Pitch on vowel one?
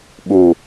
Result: low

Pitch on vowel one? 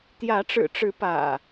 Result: rising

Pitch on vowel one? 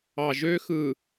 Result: low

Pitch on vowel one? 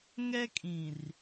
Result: high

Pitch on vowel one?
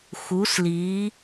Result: rising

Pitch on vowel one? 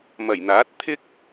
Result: low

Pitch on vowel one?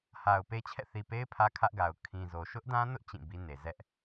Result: low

